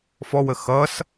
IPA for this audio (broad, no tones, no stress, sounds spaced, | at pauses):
f ɔ w ə x ʌ s